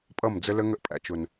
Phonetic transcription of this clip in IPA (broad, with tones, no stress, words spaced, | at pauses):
pʼʌ˦˨md͡zə˦lə˦ ŋə˦ʔpʼæ̰˨t͡ʃʊ˨n